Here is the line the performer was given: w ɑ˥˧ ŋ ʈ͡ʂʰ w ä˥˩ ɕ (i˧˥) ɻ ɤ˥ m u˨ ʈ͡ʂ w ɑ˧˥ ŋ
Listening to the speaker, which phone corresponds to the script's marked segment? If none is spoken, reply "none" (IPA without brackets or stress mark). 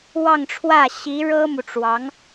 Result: i˧˥